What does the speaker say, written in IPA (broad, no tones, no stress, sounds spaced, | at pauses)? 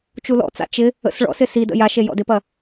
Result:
t͡ʃ u l ɔ̰ t͡s a̰ t͡ʃ ɪ | ə̰ s ɭ ɔ̰ s ɪ s i d ə̰ j a ʃ e j ɔ̰ d ɪ p ɐ